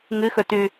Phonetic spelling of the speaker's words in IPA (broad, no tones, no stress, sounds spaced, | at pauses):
ŋ ɨ x ɵ t ʉ